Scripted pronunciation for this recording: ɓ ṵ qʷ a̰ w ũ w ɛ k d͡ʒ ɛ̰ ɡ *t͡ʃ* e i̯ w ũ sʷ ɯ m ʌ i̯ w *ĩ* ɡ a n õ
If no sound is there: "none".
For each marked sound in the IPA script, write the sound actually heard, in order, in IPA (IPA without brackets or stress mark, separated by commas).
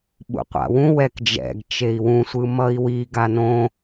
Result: t͡ʃ, i